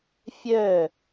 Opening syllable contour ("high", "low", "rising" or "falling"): falling